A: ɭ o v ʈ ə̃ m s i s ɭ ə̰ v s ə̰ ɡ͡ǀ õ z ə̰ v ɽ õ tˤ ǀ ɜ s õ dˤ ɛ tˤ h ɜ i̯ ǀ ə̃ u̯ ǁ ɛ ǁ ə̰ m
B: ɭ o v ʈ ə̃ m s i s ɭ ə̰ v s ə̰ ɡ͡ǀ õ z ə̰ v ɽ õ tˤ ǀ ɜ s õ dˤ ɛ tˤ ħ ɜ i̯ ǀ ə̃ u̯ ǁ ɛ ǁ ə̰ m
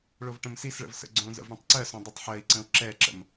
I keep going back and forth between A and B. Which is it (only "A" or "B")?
B